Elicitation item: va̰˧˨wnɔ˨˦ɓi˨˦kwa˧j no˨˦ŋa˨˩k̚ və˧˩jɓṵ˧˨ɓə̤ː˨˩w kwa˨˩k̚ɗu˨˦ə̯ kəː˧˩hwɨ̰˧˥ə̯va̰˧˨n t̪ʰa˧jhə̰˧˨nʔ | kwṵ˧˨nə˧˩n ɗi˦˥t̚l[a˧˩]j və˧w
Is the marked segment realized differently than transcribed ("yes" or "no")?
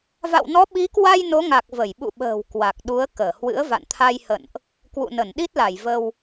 no